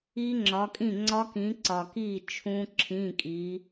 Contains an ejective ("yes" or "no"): yes